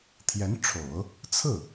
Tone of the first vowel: rising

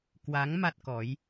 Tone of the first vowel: rising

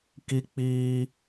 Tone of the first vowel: high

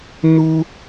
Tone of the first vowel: high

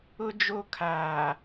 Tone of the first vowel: high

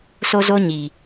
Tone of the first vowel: high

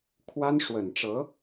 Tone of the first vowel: high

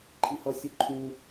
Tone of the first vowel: high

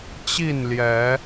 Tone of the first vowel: falling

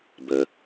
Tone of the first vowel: low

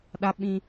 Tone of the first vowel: high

